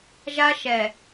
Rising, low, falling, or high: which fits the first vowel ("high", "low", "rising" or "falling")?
high